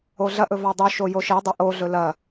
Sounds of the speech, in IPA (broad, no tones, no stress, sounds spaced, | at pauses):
o ɮ ɐ ʔ ɵ v a dˤ ʉ ʃ o j o ʃ i dˤ e ʔ o ɮ ɵ l ɐ